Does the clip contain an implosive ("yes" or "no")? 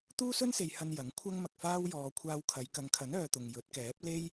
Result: no